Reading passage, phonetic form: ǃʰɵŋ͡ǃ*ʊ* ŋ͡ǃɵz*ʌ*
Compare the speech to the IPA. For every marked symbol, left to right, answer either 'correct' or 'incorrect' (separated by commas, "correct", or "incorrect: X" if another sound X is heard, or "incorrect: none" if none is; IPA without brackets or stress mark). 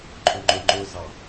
incorrect: ɵ, incorrect: ɑ